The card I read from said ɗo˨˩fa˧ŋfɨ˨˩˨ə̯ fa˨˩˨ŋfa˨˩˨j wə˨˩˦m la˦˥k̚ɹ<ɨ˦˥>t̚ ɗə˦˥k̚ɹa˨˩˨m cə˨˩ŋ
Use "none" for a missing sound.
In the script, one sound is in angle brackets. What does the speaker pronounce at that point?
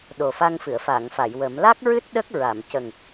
ɨ˦˥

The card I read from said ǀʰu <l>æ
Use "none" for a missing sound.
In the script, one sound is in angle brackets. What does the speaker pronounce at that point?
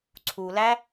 l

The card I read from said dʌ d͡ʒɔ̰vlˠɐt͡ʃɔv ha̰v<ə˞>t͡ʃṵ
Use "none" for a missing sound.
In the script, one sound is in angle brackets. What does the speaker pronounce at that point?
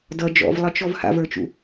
ə˞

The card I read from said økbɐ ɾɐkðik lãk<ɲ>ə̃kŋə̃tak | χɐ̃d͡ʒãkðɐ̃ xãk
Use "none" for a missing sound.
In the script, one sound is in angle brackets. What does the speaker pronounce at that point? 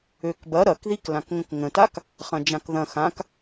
ŋ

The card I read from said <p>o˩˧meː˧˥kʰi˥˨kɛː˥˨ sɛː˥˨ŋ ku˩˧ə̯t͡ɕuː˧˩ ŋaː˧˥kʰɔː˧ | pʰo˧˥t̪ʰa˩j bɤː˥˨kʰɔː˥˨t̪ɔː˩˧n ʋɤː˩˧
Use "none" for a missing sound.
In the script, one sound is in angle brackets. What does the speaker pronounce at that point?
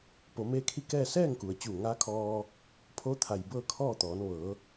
p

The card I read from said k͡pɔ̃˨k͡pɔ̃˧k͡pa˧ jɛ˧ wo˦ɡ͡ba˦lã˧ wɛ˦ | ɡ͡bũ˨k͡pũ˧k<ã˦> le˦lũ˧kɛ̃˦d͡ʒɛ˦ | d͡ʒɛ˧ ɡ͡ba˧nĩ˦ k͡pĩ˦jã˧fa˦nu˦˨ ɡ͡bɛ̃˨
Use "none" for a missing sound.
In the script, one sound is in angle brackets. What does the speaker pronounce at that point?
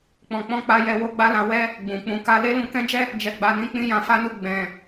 a˦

